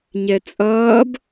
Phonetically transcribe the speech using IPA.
ɲɛt͡sʼʌːb

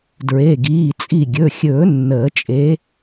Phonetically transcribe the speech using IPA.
dɹe˩˧˩ɡiː˩˧˩ t͡sʼi˧˩ɡʲɵ˩˧˩xʲɵː˨˩˦ nːəː˨˩˦t͡ʃʼe˨˦

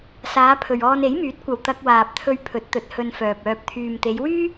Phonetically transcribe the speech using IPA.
saː˨˧pʰɵ˨ɥ ɔː˧ne˨˥jmyː˨˥t̚kʷɐ˨w t̪ɐ˧k̚waː˨p̚t̪ʰɵ˧ɥ pʰɵ˨˥t̚t̪ɵ˨˥t̚ hɵ˧nfœː˨p̚œː˧p̚ t̪ʰyː˨mt̪e˨˧jwyː˥

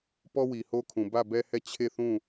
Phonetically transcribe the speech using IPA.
pɔ˦wi˨ho˦kʰũ˨ bä˦˨bɛ˦hɛ˦˨ t͡ɕʰe˦˨θũ˦˨

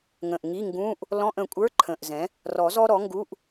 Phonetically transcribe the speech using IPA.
ŋə̃˨˩ʔŋi˧˥˧ ŋɡũ˧˥˧ʔ | lɔ̃˧˥˧ʔə̃˨˩kʷʼə˞˧˥˧ ǃʰə̃˨˩ʔzɛ̃˩˥ | rɔ˨˩˦ zɔ˥ɾɔ˩˥ŋɡu˧˥˧ʔ

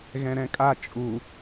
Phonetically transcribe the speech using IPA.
ɣɛ̃ɾɛ̃kʼa t͡ʃʼu

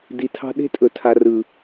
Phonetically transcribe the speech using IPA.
di˨tʰɑ̤˧ ɗe̤˧tʼɵ˨tʰa˨ rɯ˨

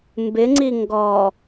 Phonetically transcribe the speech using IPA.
mbɪŋ͡ǀi ŋɡɔ

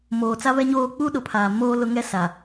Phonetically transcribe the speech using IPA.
moː˨t͡sa˦ βɛ˦ɲoː˦ k͡pu˦ɗʊ˨pʰaː˨ moː˦lʊ˦ŋɛ˦ sa˨

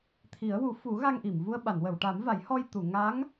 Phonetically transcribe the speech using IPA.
t̪ʰi˨˩˦ə̯wu˨˩˦ fu˨˩˦ ɣa˧ŋʔi˨˩˨mvu˧ə̯ ɓa˨˩˨nwə˨˩˨wʈa˨˩˦mva˨˩˦j hɔ˧jt̪u˨˩˨ ŋa˧˥ŋ

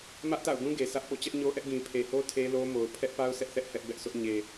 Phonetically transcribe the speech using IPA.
mä˦ʔta̰˦˨ʊ̯ɡũ˦ ɡe˨sä˦ʔpo̰˦˨ t͡ɕɛ˦ʔɲo˦ʔɛ˦ʔ ɡĩ˨pʰe˨ho˦ tʰe˦lo˦mo˨ʊ̯ pʰɛ˦ʔpa˦ʊ̯ sɛ˦ʔθɛ˦ʔ hɛ˦ʔbɛ˦ʔsʰʊ˦ʔ ɲe˨

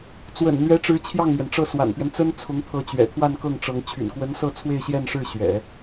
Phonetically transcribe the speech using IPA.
t͡swə̰˨˩nn̪ɥɛ˧˥ʈ͡ʂɻ̩˧˥ t͡ɕʰjɑ˥˩ŋmɥɛ˩nʈ͡ʂɤ˥˩ swa̰˨˩npɥɛ˦n t͡sə˥nt͡sʰʊ˧˥ŋt̪ʰɤ˧˥ t͡ɕɥɛ̰˨˩t̪ʰwa˥˧nkɤ˥˩ŋʈ͡ʂɤ˧˥ŋ t͡ɕʰy̰˨˩nkwə˧˥nsɤ˥˧ t͡sʰwe˥˧ɪ̯ɕjɛ˥˧nʂɻ̩˥˩ɕɥɛ̰˨˩˦

